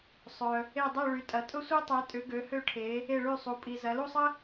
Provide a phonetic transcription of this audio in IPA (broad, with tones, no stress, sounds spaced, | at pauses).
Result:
sˤ œ˨ | e˥˧ dˤ y˥˧ ɭ y˨˦ tʼ ɐ˨˦ tʼ ʊ˥ sʷ e˥ tˤ ɛ˨˦ tʼ ʏ˨˦ ɡ ø˨˦ h ø˥˧ ʈʰ e˨˦ | e˥˧ ɭ y˥˧ sˤ u˨˦ pʼ i˨ z ɐ˨˦ l u˥˧ sˤ ə˥